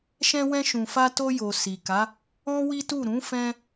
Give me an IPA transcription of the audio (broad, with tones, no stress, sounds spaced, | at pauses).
ʃ ɛ̃˧ w ɛ̃˧ ʃ ũ˨ f a˧ t o˧ j o˨ s i˨ k a˨˦ | ɔ̃˦ w i˦ t u˦˨ ɾ ũ˨˦ f ɛ̃˧